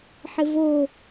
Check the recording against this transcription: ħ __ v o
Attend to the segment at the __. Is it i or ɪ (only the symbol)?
ɪ